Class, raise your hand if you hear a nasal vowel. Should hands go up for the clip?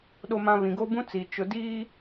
yes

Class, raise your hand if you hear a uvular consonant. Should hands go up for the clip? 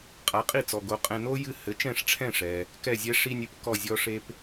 yes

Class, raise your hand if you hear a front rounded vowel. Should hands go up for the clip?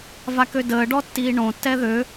yes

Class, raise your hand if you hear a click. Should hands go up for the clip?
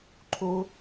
yes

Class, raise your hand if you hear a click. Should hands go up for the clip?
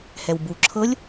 yes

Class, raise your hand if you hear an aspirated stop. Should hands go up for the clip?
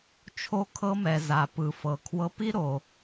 yes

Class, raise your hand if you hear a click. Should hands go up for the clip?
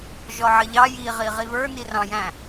no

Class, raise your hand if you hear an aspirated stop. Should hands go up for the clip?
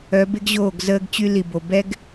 no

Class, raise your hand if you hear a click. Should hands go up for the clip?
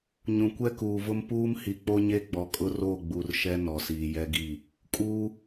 no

